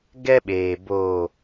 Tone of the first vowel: high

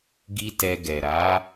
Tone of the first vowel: high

